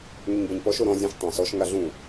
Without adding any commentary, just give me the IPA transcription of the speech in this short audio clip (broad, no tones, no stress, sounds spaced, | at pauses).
ŋ y ɲ b ɐ ɲ p ɔ ʃ o ɾ ɔ̃ zʲ ɐ̃ ʃ tˤ ã s ɔ ʃ ŋ a ɮ ũ